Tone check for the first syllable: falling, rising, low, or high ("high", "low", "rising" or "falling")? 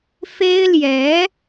high